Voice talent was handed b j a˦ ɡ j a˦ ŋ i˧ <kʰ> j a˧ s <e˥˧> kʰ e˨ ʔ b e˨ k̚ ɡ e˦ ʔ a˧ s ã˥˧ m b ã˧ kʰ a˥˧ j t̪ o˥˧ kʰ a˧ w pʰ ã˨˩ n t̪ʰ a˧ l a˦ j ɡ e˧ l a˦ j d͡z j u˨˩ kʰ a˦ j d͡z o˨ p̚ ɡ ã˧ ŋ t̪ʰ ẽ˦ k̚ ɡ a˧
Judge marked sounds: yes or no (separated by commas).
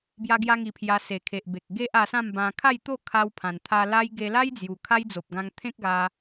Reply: no, no